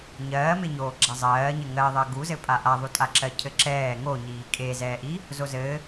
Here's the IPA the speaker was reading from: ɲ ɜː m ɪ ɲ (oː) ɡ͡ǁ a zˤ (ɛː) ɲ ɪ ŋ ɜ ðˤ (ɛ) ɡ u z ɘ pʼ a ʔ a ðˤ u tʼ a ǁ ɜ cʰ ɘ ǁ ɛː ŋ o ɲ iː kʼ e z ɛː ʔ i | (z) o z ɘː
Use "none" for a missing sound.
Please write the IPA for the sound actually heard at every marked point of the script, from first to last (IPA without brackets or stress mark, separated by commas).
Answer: oː, ɜː, ɜ, z